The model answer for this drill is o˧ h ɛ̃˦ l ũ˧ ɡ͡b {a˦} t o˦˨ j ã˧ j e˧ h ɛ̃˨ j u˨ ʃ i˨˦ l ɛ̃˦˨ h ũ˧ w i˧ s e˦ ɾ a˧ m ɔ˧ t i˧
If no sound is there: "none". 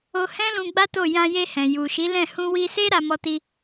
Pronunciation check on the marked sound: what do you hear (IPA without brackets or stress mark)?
a˦